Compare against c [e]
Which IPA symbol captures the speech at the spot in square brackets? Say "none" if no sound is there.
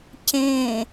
ẽ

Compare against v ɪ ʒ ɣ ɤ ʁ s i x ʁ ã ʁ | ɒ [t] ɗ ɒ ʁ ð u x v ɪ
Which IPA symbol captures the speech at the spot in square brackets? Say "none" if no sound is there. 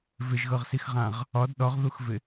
d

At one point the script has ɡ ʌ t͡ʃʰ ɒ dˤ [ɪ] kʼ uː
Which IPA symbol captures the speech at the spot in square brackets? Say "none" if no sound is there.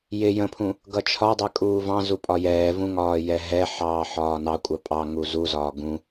ɛ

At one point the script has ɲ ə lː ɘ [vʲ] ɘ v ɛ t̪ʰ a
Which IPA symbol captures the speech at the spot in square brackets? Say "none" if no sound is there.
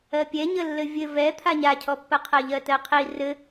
vʲ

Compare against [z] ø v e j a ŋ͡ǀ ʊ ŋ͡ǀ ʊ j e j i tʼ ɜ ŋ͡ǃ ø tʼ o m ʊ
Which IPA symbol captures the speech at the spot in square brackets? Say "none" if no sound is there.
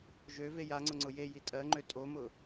ʒ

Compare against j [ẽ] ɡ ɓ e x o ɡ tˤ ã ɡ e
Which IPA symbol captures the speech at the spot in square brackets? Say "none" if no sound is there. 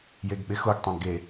e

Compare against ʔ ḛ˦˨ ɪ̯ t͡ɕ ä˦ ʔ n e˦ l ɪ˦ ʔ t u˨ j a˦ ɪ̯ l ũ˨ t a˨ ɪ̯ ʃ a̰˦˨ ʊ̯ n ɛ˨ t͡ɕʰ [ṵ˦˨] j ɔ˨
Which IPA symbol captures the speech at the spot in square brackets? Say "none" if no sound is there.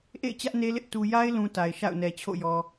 o̰˦˨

